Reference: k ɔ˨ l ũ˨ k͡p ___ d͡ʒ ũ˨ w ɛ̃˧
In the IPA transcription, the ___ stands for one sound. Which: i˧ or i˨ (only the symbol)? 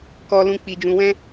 i˨